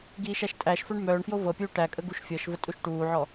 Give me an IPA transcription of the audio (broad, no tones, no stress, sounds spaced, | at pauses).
ɡ iː ʃ æ ʃ tʼ æ ʃ f œ ɳ m œː ɳ f j o v ɤ pʲ uː ʈ æ kʼ ə ɡ u ʃ fʲ ɤ ʃ v ə tʼ u ʃ ʈ uː ʕ ɔ